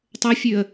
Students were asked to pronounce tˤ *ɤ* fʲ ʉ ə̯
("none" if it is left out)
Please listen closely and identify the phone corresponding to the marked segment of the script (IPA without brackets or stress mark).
ɤ